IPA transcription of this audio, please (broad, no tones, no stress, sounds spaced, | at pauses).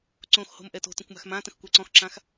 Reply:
ǀ õ x h o̤ m ʔ ɛ t o̤ t ə̃ kʷ m a̤ x m ã t ə̃ x kʷ ɛ ǀ ɔ̃ x ǁ ã x